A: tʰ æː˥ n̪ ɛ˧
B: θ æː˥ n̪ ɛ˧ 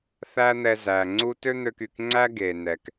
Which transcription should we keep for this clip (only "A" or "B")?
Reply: B